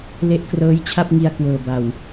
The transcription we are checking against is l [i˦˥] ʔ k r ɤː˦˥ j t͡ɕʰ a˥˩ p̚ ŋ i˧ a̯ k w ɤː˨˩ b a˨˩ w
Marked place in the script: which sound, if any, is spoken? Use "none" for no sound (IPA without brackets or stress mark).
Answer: e˦˥